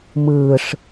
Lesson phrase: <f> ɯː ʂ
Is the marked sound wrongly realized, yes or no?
yes